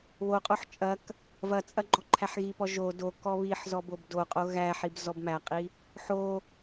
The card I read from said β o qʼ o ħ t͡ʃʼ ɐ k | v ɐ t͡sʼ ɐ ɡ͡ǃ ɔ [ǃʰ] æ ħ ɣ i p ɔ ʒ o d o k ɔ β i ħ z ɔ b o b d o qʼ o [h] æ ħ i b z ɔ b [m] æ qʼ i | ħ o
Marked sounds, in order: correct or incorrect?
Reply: correct, incorrect: ɣ, correct

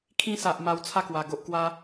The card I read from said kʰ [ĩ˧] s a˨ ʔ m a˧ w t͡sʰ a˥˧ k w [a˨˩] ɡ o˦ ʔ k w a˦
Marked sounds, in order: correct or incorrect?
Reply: correct, correct

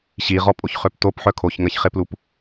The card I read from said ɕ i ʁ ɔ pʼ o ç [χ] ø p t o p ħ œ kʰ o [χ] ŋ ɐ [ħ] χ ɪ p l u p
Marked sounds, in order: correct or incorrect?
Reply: correct, incorrect: ç, incorrect: ç

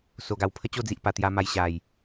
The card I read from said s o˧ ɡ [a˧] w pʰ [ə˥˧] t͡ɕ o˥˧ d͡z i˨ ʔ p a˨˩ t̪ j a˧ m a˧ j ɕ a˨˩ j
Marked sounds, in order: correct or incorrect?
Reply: correct, incorrect: ə˦

